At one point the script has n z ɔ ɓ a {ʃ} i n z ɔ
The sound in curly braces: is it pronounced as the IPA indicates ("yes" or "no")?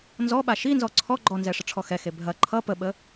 yes